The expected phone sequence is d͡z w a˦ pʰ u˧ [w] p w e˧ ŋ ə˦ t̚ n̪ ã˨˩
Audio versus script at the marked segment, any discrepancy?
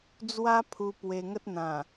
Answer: yes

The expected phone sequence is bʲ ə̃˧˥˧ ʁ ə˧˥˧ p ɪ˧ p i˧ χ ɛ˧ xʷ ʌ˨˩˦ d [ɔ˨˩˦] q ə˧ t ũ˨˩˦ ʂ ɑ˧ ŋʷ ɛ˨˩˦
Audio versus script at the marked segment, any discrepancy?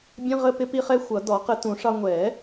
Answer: no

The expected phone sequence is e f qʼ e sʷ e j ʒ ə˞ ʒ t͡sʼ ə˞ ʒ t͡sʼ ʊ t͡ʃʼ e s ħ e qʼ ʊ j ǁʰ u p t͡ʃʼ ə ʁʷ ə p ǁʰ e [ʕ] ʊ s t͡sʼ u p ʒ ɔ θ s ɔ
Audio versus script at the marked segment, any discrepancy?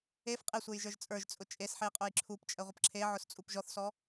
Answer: no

